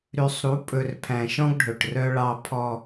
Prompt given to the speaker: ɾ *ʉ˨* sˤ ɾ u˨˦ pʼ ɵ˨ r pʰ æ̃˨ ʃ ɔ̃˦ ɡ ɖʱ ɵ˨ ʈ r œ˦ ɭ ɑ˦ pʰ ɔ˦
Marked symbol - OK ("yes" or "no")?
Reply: yes